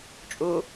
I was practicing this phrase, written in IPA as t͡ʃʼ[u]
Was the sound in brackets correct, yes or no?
yes